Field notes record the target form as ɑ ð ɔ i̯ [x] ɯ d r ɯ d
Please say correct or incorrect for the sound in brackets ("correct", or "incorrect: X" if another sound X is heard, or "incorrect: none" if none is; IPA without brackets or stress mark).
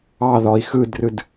correct